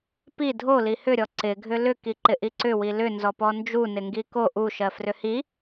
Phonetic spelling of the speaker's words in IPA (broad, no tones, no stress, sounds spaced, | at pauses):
p i dʱ o l i h ʏ ɾʲ ɔ ǀ ɪ ɡʱ ʏ l ʏ k i ǃ ɪ ʔ i ǀ ʏ w i l ʏ n z ɔ p ɔ n d͡ʒ u n ɪ ŋ ɡ i k o ʔ u ʃ ɜ f r ʏ h i